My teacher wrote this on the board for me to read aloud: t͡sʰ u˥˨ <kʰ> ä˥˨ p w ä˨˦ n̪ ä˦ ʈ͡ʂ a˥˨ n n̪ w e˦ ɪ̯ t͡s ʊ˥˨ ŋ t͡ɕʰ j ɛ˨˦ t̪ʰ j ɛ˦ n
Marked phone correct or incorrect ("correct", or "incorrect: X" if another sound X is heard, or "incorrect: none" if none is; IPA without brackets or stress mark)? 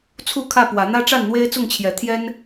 correct